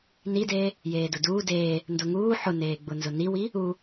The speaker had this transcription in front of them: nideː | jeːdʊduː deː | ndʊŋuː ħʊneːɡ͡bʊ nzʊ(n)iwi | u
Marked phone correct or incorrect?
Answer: correct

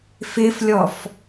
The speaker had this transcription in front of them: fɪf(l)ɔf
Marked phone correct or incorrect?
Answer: incorrect: lʲ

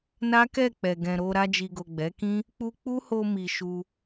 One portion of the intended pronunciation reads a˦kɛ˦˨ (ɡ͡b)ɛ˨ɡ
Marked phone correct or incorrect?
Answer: incorrect: k͡p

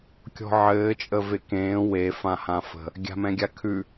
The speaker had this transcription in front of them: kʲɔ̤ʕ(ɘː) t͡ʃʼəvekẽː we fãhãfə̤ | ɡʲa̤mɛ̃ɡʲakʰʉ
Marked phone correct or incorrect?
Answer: correct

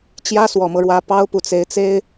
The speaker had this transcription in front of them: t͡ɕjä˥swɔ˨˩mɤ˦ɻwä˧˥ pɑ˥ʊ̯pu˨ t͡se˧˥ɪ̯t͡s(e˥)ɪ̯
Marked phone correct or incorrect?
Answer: correct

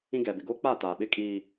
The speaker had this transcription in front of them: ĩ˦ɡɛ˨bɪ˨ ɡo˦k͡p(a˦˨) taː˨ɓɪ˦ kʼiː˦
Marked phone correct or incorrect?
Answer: correct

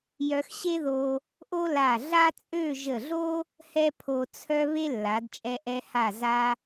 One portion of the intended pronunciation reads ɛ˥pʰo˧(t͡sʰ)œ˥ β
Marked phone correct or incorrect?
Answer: correct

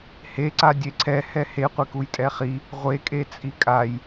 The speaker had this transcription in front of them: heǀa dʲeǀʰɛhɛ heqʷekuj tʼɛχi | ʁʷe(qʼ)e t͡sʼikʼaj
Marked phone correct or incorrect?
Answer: incorrect: kʼ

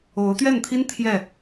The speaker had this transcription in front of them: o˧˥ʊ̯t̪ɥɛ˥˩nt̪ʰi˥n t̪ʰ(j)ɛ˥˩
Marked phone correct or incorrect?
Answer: correct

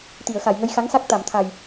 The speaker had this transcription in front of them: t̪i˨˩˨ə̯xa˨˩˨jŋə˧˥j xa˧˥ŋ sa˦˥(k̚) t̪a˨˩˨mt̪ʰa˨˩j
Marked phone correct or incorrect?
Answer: correct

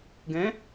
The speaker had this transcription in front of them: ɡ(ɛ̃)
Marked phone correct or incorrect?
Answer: correct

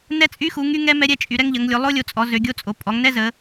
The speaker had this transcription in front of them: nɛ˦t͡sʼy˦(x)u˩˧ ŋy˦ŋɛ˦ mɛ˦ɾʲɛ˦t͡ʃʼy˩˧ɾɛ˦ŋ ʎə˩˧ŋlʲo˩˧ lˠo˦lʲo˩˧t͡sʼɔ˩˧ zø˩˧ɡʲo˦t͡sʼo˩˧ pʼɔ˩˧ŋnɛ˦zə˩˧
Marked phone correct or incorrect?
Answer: correct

